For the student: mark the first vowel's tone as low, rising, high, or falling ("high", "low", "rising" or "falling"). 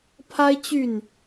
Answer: high